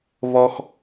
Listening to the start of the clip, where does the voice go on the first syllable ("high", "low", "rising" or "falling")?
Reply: high